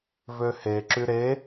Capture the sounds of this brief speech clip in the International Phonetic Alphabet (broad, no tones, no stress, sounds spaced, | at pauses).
v ø h e ǁ y ɾ e